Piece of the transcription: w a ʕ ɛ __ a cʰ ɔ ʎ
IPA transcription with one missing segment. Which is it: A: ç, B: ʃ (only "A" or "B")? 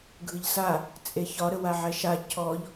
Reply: B